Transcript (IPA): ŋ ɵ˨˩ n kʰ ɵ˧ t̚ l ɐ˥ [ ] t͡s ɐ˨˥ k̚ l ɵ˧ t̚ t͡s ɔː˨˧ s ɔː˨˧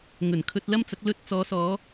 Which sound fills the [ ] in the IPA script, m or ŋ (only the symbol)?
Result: m